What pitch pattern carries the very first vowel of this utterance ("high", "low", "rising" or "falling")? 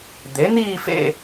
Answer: rising